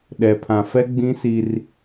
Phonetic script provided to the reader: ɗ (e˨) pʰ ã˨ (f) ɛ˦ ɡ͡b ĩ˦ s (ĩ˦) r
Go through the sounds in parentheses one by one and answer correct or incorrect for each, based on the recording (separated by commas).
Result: incorrect, correct, incorrect